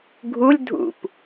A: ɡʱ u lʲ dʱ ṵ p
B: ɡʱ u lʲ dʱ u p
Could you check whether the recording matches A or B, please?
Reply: A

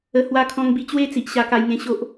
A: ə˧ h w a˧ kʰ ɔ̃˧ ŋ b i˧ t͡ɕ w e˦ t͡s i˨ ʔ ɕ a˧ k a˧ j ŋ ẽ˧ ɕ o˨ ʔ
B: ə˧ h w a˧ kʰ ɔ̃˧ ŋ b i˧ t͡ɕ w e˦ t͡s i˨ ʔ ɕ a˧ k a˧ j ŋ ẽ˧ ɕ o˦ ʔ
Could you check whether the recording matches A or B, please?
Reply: A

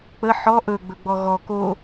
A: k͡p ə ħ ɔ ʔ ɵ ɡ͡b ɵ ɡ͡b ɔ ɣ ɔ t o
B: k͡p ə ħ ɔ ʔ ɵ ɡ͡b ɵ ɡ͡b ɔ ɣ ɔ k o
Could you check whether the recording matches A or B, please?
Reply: B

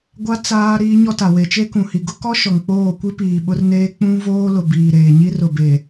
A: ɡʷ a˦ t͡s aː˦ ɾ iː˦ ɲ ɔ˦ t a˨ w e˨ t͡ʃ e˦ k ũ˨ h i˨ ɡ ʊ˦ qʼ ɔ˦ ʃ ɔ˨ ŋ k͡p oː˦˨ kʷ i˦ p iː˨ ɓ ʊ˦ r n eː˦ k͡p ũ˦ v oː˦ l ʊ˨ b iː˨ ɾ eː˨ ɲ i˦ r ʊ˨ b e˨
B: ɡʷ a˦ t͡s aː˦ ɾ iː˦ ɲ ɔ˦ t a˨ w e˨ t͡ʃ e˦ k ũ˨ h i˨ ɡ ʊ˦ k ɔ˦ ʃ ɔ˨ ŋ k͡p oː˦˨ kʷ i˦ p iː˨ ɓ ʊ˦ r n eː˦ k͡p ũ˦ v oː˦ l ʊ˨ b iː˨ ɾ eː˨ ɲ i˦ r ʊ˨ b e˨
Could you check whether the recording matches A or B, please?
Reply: B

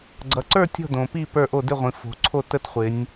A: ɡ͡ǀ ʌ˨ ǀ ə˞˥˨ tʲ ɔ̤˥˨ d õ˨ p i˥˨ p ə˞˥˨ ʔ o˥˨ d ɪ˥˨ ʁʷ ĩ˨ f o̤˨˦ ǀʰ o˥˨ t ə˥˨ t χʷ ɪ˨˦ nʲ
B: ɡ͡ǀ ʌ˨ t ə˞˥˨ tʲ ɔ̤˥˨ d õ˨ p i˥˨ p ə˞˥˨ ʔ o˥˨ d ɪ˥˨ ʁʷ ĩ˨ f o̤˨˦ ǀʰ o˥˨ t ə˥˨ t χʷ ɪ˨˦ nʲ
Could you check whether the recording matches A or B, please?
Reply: A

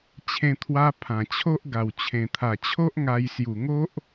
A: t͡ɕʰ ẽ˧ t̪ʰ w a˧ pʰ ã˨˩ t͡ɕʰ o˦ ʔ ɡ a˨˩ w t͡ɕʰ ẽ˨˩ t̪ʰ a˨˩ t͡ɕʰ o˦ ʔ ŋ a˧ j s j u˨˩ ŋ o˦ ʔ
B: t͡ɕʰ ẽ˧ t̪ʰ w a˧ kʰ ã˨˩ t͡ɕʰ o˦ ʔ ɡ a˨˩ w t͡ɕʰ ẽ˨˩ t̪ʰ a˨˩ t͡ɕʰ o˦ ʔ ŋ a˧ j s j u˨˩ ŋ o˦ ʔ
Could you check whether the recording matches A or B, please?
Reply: A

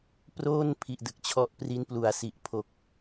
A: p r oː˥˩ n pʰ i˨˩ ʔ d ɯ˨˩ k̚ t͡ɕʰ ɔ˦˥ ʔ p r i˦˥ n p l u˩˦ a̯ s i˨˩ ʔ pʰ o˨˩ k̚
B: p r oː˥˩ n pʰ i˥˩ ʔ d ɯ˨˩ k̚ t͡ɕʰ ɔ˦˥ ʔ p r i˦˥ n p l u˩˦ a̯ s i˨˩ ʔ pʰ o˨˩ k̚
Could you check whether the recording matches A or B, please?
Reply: A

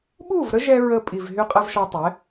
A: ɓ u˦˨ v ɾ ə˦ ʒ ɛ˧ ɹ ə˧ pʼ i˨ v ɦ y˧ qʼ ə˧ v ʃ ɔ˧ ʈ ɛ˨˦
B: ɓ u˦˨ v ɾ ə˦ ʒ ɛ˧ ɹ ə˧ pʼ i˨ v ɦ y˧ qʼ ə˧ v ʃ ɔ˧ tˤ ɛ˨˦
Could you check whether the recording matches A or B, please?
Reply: B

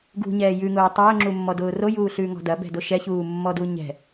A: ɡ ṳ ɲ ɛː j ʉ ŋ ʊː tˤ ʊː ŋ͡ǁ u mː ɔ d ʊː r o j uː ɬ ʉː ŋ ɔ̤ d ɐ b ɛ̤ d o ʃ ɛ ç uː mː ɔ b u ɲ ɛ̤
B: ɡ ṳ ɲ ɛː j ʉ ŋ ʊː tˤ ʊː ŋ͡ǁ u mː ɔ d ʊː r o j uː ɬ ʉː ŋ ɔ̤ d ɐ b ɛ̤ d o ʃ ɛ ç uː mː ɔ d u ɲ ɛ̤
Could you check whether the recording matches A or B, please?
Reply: B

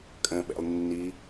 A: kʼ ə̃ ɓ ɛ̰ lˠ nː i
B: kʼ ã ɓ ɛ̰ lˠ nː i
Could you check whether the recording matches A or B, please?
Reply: A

